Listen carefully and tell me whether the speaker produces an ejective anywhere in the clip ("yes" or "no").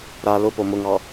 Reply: no